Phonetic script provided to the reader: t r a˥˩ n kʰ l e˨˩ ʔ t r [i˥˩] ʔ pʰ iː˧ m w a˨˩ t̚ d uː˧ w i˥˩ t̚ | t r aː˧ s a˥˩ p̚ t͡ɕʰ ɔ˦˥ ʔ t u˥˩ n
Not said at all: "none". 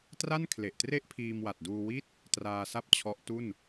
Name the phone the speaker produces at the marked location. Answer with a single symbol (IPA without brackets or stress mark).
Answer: e˥˩